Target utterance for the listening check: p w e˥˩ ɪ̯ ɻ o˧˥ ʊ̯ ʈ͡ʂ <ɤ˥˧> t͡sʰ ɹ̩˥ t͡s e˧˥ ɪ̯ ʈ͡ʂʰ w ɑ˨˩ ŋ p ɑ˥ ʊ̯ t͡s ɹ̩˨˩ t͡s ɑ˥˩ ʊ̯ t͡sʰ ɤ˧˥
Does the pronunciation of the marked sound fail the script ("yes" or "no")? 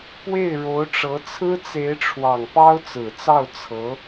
yes